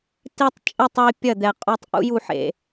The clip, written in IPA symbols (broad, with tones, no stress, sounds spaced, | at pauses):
t i˧ tˤ t͡ʃʼ ɛ˦˨ tˤ i˧ pʲ ɐ˦˨ d̪ ɛ˨ qʼ u˧ tˤ ʔ ṵ˦ j u˦˨ ħ ḛ˨